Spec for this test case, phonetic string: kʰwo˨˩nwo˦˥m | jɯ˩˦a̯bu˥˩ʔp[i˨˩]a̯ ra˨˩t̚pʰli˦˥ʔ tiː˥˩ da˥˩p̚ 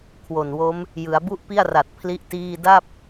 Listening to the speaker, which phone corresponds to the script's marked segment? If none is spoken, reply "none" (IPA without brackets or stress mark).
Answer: i˥˩